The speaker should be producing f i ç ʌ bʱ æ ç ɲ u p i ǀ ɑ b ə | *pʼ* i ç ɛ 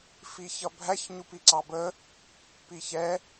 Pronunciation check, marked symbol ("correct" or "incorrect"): incorrect